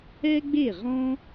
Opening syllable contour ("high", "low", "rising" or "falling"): high